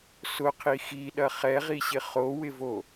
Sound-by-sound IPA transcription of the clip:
sʊqʰi xiɗɐ χɛʁiɕɪ χowɪvo

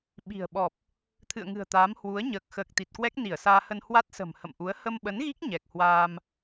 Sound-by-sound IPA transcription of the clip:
ɓi̤˨˩ə̯ɓɔ˨˩p̚ | t̪ʰɨ̰˧˨ə̯ŋɨ̤˨˩ə̯t̪aː˨˦m hwu˨˦ə̯ ɲəː˨˩k̚xəː˨˩k̚ t̪i˨˩t̚kwɛ˦˥k̚ ni˧˩ə̯saː˧hə˧n hwa˦˥t̚sə̤˨˩m hə̰˧˨mʔu˨˦ə̯ hə˧mɓə˨˦nɣi˦˥k̚ ɲɛ˨˩k̚hwaː˧m

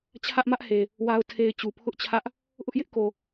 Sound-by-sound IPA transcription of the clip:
t͡ɕʰä˦ʔmä˦ʔhe˨ | wa˨ʊ̯tʰe˨ɪ̯ t͡ɕu˨pʰʊ˦ʔt͡ɕʰä˦ʔ | ʔʊ˦ʔjɪ˦ʔko˨

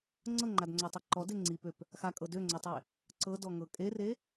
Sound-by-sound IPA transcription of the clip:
ŋ͡ǀɤŋ͡ǃadŋ͡ǀøtˤe ǃɔde ŋ͡ǀipøp | xakʼɤ døŋ͡ǀøtˤe | ǀɤdɔŋɤ kʼere

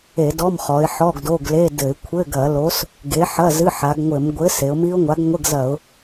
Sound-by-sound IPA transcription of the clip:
e˧˩˧dɔ˧˥˧mχɔ˩˧ɪ̯ ħɔ˧˥˧ɡdo˧˥˧ɡle˧˥˧dɘ˧˩˧ɪ̯ kʷʰɘ˧˥˧ɡɐ˧˩˧lo˨˥s | ɡe˨˥ħɐ˧˥˧ zɨ˧˥˧ħa˩˧ɡŋʷɘ˧˩˧m ɡʷɘ˨˥ se˩˧ʊ̯mi˦˥ʊ̯ŋʷa˨˥ɡ ŋʷɘ˧˥˧ɡzɐ˧˩˧ʊ̯

